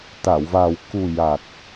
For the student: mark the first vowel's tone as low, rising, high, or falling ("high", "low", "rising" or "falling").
low